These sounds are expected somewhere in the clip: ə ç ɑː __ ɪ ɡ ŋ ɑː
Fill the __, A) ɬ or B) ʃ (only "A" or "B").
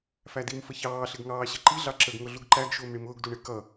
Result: A